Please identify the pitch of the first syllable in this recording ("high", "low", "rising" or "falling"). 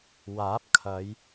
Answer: rising